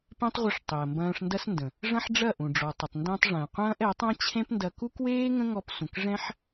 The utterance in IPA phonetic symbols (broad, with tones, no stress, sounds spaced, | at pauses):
p ẽ˦ tˤ ʁʷ ə˧ ʂ tˤ e˨ ə̯ m b ɐ̃ː˧ ʂ n d ɐ˦ s n d ə̃˨ | ʐ ɐ̃˦ ħ ɖ͡ʐ ɐ˦˨ ʔ ũ˨ ɖ͡ʐ ɔ˨ tˤ ə˨ tˤ n d ə̃ː˧ tˤ ʐ ə̃ː˨ qʷ ɐ̃ː˦ ʔ ɛ˨˦ tˤ ɛ̃˦ t͡ɕʰ ẽ˦ p n d ɐ˧ k u˦ k w eː˦ ŋ ə̃˦ ŋ ɔ˧ p sʷ ə̃˨ k ʐ ɛ̃˧ ħ